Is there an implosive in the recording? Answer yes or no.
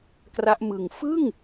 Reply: no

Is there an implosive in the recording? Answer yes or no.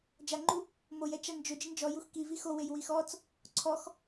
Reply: no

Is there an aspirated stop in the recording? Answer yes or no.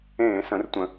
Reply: no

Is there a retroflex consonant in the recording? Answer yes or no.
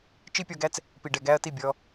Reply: yes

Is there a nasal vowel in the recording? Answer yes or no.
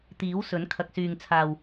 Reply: no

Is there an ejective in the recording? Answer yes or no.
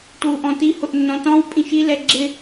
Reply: yes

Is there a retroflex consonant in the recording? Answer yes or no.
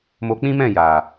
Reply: no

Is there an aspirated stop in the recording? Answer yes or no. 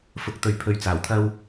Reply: yes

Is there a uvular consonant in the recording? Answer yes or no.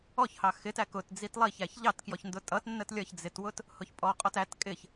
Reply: yes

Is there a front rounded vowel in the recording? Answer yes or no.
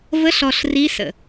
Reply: no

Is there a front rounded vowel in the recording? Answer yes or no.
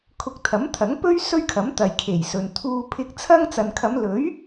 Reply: no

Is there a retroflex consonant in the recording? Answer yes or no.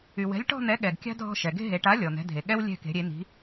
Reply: yes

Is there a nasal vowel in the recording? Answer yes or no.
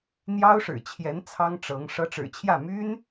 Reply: no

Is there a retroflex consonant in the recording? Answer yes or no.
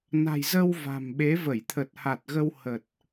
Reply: no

